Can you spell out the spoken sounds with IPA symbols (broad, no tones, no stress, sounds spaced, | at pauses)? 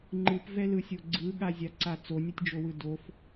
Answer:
ŋ͡ǃ ɯ p v ɛ l ɯ sʲ o ɡ͡ǀ ɯ ɠ a zʲ a ǀ a t͡s o nʲ ɤ tʲ d͡ʒ o w ɯ d o f